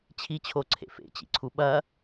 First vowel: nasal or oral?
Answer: oral